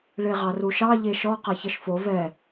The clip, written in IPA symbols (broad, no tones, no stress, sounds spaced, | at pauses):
ɭ e ʁ ɑ r u ʃ ɑ ʎ e ʃ ɔ q a ç ʌ ʃ f o v ɛ